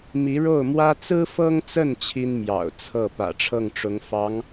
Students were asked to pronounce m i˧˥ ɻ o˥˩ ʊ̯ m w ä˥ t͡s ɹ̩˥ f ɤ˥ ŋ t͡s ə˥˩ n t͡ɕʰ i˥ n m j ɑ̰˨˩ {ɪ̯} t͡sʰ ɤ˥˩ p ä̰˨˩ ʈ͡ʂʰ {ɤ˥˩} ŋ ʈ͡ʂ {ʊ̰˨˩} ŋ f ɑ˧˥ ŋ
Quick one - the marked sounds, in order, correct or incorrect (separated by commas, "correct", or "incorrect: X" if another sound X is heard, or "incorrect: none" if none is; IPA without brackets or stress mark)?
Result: incorrect: ʊ̯, correct, incorrect: ʊ˧˥